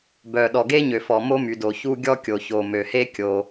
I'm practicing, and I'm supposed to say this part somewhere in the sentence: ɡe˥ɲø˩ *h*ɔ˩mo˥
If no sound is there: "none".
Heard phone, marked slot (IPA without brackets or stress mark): f